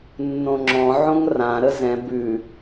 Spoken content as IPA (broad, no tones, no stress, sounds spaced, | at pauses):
nː õ ŋ͡ǁ ɔ̃ ʕ õ ŋ r ã ɾ ə z ɛ̃ b ʉ